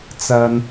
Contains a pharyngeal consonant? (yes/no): no